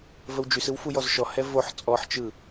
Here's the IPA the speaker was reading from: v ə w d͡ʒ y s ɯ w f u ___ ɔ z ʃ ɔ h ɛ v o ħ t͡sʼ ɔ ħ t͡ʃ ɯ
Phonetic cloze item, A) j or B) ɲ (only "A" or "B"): A